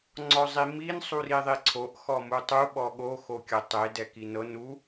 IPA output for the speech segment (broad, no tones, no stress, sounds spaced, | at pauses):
ŋ͡ǀ ɔ zˤ i m i n sˤ u r i ðˤ i ǀʰ o ʔ x ɔ m u tˤ u ɓ ɔ ɠ o x o kʲ ɤ tˤ e d ɛ k i n ɤ n u